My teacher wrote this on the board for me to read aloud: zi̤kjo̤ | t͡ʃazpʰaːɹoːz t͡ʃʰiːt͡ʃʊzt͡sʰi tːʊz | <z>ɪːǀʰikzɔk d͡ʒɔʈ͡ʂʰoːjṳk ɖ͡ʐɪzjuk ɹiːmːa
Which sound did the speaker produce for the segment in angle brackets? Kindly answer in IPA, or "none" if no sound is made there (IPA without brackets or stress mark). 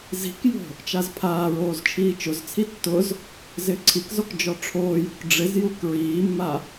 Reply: z